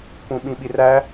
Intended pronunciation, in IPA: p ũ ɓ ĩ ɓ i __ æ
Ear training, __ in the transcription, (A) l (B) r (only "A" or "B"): B